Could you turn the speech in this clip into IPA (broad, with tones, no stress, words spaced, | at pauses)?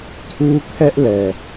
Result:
tʰu˦ kʰɛ˦ʔlɛ˨